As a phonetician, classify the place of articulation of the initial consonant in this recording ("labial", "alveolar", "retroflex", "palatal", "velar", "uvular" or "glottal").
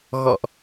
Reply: velar